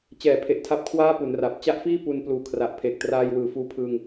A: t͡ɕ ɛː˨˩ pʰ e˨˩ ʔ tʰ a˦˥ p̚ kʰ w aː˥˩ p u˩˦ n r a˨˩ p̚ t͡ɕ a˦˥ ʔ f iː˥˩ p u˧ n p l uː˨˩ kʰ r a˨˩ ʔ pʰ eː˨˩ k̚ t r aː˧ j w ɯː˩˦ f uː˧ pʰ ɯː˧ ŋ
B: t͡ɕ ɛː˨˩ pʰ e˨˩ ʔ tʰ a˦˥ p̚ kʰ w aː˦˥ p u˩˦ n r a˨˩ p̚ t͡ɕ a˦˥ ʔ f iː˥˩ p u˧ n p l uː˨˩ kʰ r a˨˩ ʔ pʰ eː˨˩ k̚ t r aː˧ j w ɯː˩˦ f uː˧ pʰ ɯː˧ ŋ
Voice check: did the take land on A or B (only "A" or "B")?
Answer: A